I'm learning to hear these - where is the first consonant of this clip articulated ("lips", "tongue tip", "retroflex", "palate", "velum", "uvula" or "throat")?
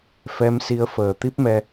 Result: lips